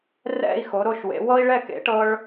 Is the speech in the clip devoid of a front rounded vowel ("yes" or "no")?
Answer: yes